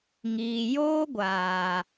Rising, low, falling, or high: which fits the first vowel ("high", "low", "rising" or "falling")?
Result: low